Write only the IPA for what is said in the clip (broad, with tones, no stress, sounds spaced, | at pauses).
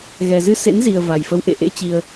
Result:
ɣ ɛ˨˩ z ɨ˧ s ḛ˧˥ n z i˨˩ ə̯ v a˨˩ j f ə˨˦ w ʔ ḛ˧˨ ʔ ḛ˧˥ t͡ɕ i˨˩ ə̯